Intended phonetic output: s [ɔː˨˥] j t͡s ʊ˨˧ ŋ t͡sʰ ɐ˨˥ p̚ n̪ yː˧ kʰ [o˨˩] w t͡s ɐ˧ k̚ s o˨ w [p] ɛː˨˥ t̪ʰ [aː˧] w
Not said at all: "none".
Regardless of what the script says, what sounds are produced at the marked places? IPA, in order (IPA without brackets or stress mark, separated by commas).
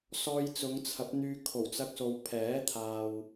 ɔː˧, o˨˩, pʰ, aː˨